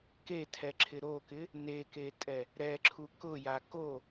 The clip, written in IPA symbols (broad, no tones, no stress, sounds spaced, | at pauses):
k e tʰ ɛ ǁʰ ɪ ɾ o k ɪ | n e k e tʼ ɛ | ɾ ɛ ǁʰ u k ʊ j a k o